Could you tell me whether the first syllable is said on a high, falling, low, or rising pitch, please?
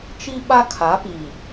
high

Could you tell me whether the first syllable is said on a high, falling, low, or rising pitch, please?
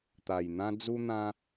low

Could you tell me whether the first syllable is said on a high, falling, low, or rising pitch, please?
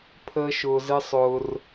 high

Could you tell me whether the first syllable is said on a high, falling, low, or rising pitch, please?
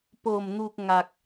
low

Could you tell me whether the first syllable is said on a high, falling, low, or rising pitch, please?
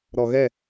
low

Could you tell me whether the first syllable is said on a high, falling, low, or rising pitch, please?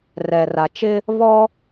low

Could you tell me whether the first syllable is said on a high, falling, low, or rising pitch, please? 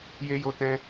high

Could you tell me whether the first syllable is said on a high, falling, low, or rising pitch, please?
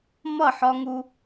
falling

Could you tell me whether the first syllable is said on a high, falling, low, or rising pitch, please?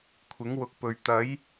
rising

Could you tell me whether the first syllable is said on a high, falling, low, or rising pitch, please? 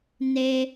high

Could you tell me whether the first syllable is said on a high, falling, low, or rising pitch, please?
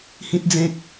high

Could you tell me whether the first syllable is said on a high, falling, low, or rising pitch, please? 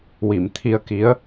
low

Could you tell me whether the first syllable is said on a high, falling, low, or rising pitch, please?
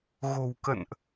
low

